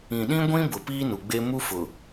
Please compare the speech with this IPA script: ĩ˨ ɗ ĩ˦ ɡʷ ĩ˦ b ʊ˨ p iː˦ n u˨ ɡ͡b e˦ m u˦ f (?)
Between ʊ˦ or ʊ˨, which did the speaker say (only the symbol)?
ʊ˨